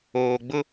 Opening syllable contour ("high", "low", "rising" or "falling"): low